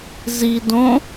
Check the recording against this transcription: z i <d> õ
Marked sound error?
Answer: no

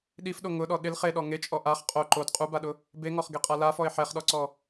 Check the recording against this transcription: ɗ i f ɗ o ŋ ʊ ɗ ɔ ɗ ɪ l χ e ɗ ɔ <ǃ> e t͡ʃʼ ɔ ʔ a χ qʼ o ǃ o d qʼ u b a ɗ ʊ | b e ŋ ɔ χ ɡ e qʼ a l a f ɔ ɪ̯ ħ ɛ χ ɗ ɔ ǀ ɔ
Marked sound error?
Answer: yes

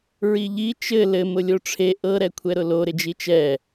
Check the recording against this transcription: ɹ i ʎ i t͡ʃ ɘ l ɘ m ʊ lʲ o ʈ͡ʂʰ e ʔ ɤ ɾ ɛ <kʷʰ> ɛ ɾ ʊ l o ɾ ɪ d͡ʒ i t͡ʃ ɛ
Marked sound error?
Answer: no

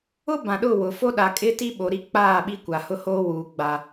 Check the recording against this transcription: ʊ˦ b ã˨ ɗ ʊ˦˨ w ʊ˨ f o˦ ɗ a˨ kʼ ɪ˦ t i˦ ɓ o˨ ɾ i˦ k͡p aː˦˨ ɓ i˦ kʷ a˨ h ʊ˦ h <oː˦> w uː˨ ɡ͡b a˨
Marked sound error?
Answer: no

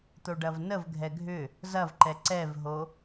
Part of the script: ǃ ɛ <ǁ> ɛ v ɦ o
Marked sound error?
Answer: yes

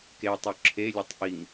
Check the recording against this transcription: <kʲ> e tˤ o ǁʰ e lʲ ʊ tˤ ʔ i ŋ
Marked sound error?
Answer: yes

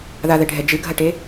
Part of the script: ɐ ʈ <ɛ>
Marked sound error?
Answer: yes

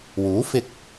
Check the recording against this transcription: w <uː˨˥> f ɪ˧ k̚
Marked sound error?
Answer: no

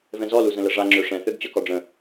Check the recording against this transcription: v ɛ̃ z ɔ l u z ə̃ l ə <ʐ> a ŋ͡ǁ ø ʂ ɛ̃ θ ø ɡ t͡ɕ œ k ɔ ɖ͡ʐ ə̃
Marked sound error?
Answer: no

